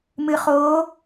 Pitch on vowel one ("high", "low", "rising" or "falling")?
low